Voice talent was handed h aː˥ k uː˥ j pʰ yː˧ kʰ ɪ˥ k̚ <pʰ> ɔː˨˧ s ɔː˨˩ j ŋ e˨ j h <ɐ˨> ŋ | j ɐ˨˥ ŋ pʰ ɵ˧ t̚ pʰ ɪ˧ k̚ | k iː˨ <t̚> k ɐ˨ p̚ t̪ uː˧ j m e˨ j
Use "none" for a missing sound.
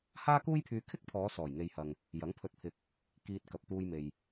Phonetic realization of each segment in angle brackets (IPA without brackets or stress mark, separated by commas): pʰ, ɐ˨, t̚